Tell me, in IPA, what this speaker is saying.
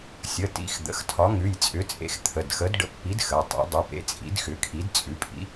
sʲə˩˧˩tḭ˩˧˩x d̪ə̰˩˧˩xtʰɒ˨˥ ŋʉ˩˧˩jt͡sʼʏ˨˥t͡sʼḛ˨˥x t̪ʰə˩˧˩dxə˨˥d ɖə̰˨˥pːi˨˥d xə˩˧˩tˤḛ˨˥ dˤe˩˧˩pḛ˨˥ t͡sʼḭ˨˥dxʏ˨˥kʰi˨˥d t͡sʼʉ˨˥pʼḭ˨˥

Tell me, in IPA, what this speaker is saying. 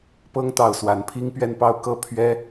pɤ˥ŋ t̪ɑ˥˩ʊ̯swa˧˥n pʰi˥ŋpɥɛ˥˧npɑ˥˧ʊ̯ kɤ˥˩pʰɥɛ˥

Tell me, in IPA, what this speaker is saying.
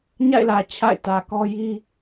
ɲa̰˦˨ɪ̯lä˨ t͡ɕʰa̰˦˨ɪ̯tä˨kɔ˦ ji˦

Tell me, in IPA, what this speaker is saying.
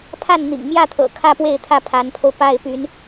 pʰa˥˩nn̪ḭ˨˩ŋmjä˥˩t̪ʰɤ̰˨˩ kʰä˥pwe˥˧ɪ̯t̪ʰä˥˩ pʰa˧˥npʰo˧ʊ̯ pa˥˩ɪ̯py˧˥n

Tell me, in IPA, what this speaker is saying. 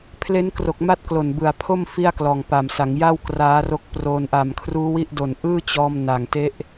pʰle˦˥nkro˨˩k̚ma˦˥t̚ klo˨˩nbɯ˨˩a̯pʰo˥˩m fi˥˩a̯klɔː˨˩ŋpa˨˩msa˩˦ŋ ja˥˩wkraː˦˥ro˦˥k̚ proː˧n ʔa˨˩mkʰruː˦˥wi˦˥ʔdo˨˩n ʔɯː˥˩t͡ɕɔː˧m na˨˩ŋte˦˥ʔ

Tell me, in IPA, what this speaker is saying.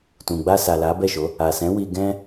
tũ˨ɡ͡ba˧sa˨ la˨˦bɛ˦˨ʃo˨˦ | a˨sɛ̃˨˦ wi˧ɡɛ̃˦

